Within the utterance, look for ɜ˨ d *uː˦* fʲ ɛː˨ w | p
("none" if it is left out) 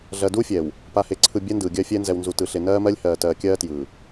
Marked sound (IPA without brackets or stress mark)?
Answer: uː˦